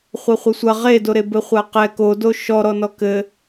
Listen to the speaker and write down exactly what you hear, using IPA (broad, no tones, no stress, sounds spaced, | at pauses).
χʷ ɛ χʷ ɘ sʷ ɐ ʁ e d o ɾ e b ɘ χʷ a q ɛ k o d o ʃ ɔ ɾ ɔ n ɔ k ɘ